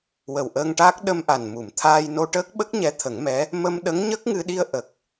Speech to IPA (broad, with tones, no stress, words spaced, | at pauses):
wə˨˩wʔəː˧ŋʈaː˦˥k̚ ɗə˧mʔa˨˩n mu˨˩˨mt̪ʰaː˧jno˧ʈəː˦˥k̚ ɓə˦˥k̚ɲɛ˧˥ t̪ʰə˨˩˦ŋmɛ˧˥ | mə˧m ɗə˧˥ŋɲə˦˥k̚ ŋɨ˧ɗi˧ə̯ ʔə˨˩k̚